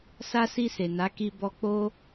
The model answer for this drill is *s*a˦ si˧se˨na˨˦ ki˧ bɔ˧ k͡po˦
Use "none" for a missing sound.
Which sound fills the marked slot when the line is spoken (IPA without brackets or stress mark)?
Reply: s